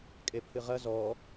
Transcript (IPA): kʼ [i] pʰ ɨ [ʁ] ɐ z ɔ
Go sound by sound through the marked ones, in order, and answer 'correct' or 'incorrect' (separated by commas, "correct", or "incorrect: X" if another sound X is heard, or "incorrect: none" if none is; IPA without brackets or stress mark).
incorrect: e, correct